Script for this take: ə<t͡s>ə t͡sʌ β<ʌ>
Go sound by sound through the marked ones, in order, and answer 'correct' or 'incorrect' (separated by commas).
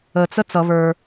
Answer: correct, incorrect